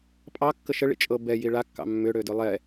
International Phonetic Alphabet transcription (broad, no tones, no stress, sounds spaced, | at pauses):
pʼ ɑ kː ə ʃ ə ɭ ḭ t͡ʃʼ ɤ b ɛ j i ɭ a kː ɑ̰ mː ʏ ɽ ø d ʏ lˠ ɛ